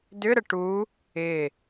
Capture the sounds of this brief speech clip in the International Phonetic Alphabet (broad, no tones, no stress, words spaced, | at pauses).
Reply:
dʏ ɾəʈu | ɪ